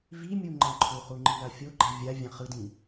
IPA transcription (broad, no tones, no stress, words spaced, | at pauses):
vimʲu ŋ͡ǃãǃʰuχu ŋ͡ǃilafʲoɡ͡ǃa vʲa vʲãχɯdĩ